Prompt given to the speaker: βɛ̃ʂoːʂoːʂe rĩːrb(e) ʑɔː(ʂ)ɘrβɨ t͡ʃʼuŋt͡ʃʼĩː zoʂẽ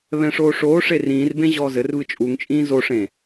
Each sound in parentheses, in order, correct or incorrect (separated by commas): incorrect, incorrect